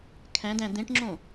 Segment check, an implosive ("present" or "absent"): absent